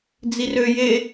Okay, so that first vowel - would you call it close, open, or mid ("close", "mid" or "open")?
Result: close